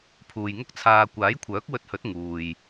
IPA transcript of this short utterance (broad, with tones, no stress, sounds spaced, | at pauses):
pʰ uː˨ j ŋ ʊ˥ k̚ t͡sʰ aː˨ kʷ aː˨˥ j kʷʰ œː˨˥ k̚ w ɵ˧ t̚ h ɵ˨˥ t̚ ŋ uː˨ j